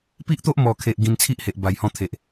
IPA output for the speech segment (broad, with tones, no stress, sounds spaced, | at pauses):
p i˦ ʔ t̪ o˦ ʔ m ɔ˨˩ kʰ e˨ ʔ ɡ ĩ˧ n t͡sʰ i˦ ʔ h e˨ ʔ b a˨˩ j h ɔ̃˧ t̪ʰ e˨ ʔ